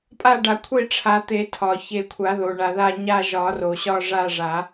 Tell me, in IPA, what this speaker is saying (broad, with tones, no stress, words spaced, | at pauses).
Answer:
pʼa˦˨ɖa˨˩˦kʷʰe˦˨ʈ͡ʂʰa˨˩˦ t̪e˨˩˦tʰɒ˩ çe˨˩˦kʷʰa˨˩˦ðo˩ɳa˩ ða˦˨ɲa˦˨ʒɒ˨˩˦ro˩ ɕɒ˦˨ʐa˦˨ʐa˨˩˦